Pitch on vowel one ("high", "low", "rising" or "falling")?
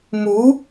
rising